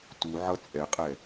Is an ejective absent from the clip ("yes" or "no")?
no